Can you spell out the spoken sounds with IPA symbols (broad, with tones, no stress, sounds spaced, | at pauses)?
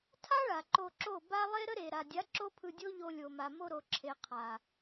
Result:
tʰ a˦ ɭ a˨ ǃ o˧ ǁ o˦˨ b a˦ lˠ e˦ ɾ ə˦ ɾ e˨ ɾ a˨ dʲ a˨˦ ǁ o˦ pʰ ɯ˧ dʲ o˦ ʎ o˧ lʲ o˨ m a˨ m o˧ ɾ o˨ ǁʰ e˨ qʰ a˨